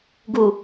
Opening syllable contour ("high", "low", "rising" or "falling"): low